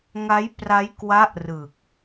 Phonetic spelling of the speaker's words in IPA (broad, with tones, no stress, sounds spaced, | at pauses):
ŋ a˦˥ j p r a˦˥ j k w a˦˥ ʔ r ɯ˨˩ k̚